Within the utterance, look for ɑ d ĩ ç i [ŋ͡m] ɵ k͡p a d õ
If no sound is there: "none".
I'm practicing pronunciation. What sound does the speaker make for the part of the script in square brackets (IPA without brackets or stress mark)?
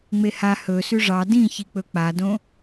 k͡p